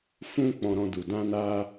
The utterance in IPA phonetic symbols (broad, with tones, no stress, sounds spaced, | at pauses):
f ũ˦ k͡p ɔ̃˧ ɾ ɔ̃˧ d u˨ d ã˧ n a˧